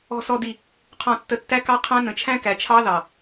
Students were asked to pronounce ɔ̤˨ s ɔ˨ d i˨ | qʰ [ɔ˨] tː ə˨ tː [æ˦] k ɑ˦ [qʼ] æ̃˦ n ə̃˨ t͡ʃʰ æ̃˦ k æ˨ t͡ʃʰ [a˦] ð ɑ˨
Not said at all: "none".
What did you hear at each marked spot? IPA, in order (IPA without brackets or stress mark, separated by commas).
ɔ̃˨, æ˦, qʰ, ɑ˦